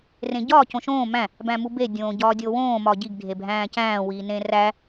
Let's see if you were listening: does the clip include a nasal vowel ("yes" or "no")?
yes